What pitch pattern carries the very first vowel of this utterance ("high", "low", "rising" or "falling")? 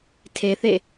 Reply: low